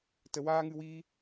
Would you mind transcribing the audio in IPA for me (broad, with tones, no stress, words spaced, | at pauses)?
tə˨waː˦ŋɨ˧wiː˦